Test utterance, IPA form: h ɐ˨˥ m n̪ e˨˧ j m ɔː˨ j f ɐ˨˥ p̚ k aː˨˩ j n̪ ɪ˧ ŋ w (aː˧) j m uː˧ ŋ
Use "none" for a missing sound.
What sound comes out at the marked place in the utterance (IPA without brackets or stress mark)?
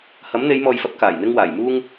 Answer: aː˨˩